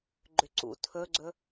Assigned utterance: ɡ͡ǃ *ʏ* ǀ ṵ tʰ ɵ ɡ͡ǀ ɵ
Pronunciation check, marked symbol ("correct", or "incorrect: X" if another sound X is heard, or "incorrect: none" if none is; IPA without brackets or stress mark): correct